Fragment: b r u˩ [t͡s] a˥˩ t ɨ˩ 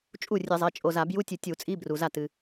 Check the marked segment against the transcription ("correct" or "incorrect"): incorrect